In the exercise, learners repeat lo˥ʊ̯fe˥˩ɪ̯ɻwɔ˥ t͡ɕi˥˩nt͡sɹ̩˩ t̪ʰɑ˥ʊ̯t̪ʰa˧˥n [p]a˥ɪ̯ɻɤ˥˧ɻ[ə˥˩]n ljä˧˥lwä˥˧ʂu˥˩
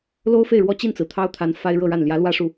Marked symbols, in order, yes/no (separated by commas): no, no